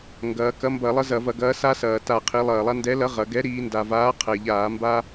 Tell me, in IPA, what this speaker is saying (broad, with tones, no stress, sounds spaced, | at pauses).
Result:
ŋ ɡ ɐː˩˧ k ɐ˨˥ m b ɐ˧˩˧ lˠ ɐ˦ z ɐ˧˩˧ v ɐ˧˩˧ ɡ ɐː˨˥ s a˦ s ɐː˩ t a˧˩˧ qʰ i˩˧ lˠ ɐː˩ lˠ a˦ n d ɛ˨˥ l ɐ˨˥ ʁ ɐ˩˧ ɡ ɛ˨˥ ɾ iː˩˧ n d a˩ v aː˨˥ qʰ ɛ˩ ʎ aː˧˩˧ m b a˦